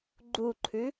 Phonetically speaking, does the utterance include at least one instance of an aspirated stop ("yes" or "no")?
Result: yes